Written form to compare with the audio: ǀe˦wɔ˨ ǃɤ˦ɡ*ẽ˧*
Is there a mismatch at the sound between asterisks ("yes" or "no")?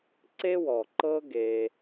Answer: yes